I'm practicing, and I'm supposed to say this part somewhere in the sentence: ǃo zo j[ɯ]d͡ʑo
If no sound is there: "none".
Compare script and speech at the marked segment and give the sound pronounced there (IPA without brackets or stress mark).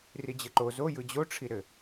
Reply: ɯ